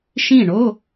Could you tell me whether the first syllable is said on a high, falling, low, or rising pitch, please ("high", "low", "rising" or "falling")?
falling